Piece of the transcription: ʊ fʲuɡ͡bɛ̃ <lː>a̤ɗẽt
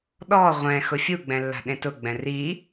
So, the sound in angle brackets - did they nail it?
yes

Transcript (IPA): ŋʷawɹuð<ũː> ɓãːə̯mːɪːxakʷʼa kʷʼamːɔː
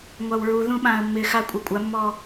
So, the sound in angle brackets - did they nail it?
no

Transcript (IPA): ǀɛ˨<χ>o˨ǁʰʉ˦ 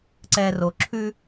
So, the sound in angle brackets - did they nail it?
no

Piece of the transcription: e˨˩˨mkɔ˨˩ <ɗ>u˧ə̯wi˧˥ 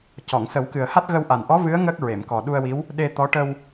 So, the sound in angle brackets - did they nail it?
yes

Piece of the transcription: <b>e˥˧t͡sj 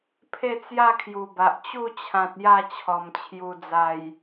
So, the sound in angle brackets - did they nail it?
no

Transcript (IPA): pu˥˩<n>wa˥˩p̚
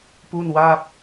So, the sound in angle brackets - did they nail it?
yes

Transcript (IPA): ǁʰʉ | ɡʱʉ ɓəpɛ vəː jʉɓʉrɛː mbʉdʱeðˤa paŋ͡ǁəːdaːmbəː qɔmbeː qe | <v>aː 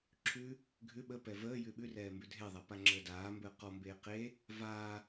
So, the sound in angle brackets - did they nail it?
yes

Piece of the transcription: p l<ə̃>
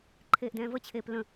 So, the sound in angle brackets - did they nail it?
yes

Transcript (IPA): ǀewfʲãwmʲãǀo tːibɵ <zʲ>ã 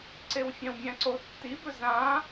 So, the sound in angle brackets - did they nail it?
no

